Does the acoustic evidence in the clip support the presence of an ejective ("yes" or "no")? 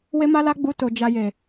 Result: no